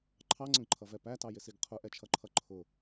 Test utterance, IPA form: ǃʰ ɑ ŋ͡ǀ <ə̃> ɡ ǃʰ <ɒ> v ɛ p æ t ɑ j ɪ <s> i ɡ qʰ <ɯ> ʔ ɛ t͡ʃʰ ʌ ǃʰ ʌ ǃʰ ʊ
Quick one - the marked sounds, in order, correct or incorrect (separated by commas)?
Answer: correct, incorrect, correct, incorrect